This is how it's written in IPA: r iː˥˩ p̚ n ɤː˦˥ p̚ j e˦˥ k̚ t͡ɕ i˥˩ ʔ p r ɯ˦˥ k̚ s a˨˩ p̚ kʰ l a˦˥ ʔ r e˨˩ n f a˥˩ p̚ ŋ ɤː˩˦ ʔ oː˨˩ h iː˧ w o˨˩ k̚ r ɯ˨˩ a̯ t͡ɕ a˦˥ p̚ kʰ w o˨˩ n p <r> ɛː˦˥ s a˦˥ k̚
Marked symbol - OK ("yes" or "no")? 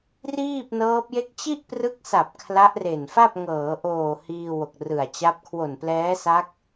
no